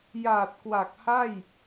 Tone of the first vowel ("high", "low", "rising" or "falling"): low